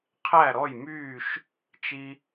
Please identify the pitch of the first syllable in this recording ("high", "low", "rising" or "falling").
falling